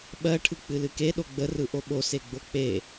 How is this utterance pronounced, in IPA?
ɓ ɜ ʈʰ ɯ k͡p ɨ l ɨ k e ɗ o ɡ͡b ə r ɯ ʔ o ɓ o s e ɡ͡b o k͡p e

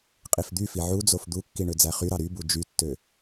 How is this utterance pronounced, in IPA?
qʼ i f d̪ y f i ʕ u d͡z o f d̪ u kː i ɳ ø d͡z æ χ y ɾ ɑ ɾ y b u d͡ʒ y tː ø

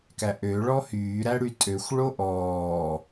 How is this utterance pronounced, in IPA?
k æ ʔ ø ɭ ɔ h yː ɾ æ ɽ y tʼ ø xʷ ɭ o ʔ ɔː

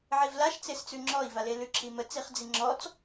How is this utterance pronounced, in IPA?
ʕ i v l a ʃ t͡s e s t͡s ʉ ŋ͡ǁ ɔ i̯ v a l e l ʉ ǁ i m ə t͡s i χ d͡z i ŋ͡ǁ ɔ t͡s

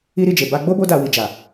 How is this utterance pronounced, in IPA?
i˦ ɾ i˦˨ d͡ʒ e˨ b a˧ ɡ͡b o˦ b o˦ d a˧ w i˨ d͡ʒ a˨

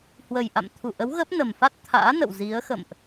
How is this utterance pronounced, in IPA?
h w ə˨˩ j ʔ a̰˧˨ m t̪ʰ u˧˩ ʔ ə˨˦ w ɣ ə˦˥ p̚ n ə˨˩ m f a˦˥ t̚ t̪ʰ a̰ː˧˥ n ə̰˧˨ w z i˨˦ ə̯ x ə̰˧˨ m ʔ

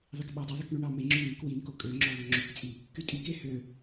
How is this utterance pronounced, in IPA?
ðˤ i k ɓ ɑ dˤ ɯ ðˤ ɯ k ɳ y ɳ ɑ m e ŋ͡ǁ y n i k w i n k o kʼ ø ŋ͡ǁ o ðˤ o ŋ͡ǁ y k t͡sʼ i | k y tʼ i k e h ø

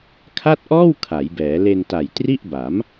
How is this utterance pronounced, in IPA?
kʰ a˥˩ t̚ ʔ ɔː˥˩ w kʰ a˩˦ j b ɛː˩˦ l e˧ n t a˨˩ j t r i˥˩ ʔ b a˩˦ m

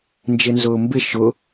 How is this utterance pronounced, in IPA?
n d͡ʒ ɪ n z ʊː m b ɪ ʃ ʊ

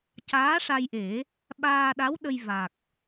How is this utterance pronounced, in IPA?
c aː˧˥ ʂ a˧ j ʔ e˨˩˦ | ɓ aː˧ ɗ a˧˥ w ɗ ə˧ j v a˨˩ k̚

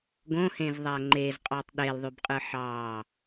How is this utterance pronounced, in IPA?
ɡ õ h ẽ z ðˤ æ ŋ͡ǃ e z qʼ ɑ tˤ ɗ e l ðˤ y b qʼ ɯ ħ ɑ

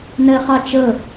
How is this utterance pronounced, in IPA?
n ɛ χ ɑ t͡ʃ ə

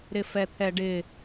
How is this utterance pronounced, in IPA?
ɾ ɪ f ɛ t̪ʰ ɛ ɖ ɪ

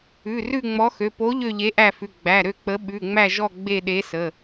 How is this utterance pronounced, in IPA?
ʉ˩˧˩ r ʉ˦˨ ŋ͡m ɔ˨˥ x ø˩˧˩ p o˨˥ ʎ ø˦˨ ʎ e˨˥ ʔ æ˦˨ f ʉ˩˧˩ ɡ͡b æ˩˧˩ ɾ ø˦˨ k͡p ə˨˥ ɓ ʉ˩˧˩ ŋ͡m æ˦˨ ʒ ɔ˦˨ ɡ͡b e˦˨ ɗ e˨˥ s ə˩˧˩

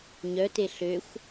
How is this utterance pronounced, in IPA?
ɲ œ t e ɬ ø xʷ

